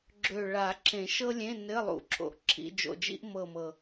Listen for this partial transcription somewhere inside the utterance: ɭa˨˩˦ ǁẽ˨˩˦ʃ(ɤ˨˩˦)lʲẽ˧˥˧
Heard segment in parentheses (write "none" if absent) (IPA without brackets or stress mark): ɤ˥